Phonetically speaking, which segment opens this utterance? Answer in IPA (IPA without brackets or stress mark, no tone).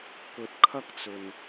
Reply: k